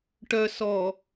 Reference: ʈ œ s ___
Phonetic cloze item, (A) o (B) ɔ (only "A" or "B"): B